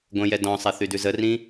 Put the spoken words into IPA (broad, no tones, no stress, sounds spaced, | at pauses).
ɡʷ ə̃ j ɛ d ɔ̃ sˤ ɛ θ y d ʉ z ə r ĩ